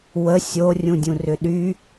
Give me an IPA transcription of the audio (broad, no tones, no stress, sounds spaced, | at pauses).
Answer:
w ə sʲ o rʲ ũ dʲ ũ r ʏ ɗ y